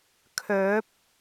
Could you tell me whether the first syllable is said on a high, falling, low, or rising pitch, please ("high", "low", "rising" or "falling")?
rising